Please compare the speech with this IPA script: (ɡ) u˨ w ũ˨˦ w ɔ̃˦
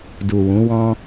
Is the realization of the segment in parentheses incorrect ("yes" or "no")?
yes